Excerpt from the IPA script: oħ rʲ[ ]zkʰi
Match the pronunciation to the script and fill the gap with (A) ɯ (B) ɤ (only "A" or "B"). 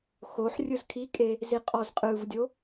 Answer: A